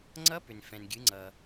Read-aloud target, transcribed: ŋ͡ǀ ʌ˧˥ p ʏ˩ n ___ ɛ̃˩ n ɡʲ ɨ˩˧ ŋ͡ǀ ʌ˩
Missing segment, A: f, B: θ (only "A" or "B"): A